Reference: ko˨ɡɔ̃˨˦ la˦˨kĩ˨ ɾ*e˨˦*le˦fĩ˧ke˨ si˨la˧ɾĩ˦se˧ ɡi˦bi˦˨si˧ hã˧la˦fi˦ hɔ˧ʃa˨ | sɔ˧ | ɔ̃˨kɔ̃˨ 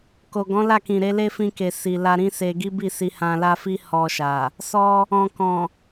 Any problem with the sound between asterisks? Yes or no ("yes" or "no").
no